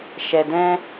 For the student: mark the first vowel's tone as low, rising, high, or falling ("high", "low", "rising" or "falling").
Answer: low